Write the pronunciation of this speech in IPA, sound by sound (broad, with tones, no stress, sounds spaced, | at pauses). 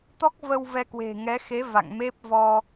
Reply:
t̪ ɔ˦˥ k̚ v ə˧ w v ɛ˧ k w e̤˨˩ ŋ ɛ˨˦ x e˨˦ v a̰˧˨ ŋ m e˦˥ p̚ v ɔ˧